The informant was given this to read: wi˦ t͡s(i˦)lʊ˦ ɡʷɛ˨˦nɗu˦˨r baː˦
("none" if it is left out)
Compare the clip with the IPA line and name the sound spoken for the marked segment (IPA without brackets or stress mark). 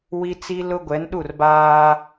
i˦